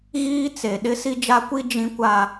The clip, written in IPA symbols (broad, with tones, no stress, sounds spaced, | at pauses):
ɣ iː˦ t͡s e˨ ɗ ɪ˦ s i˦ d͡ʒ a˦ kʷ i˦ d͡ʒ ĩ˦ kʷ a˦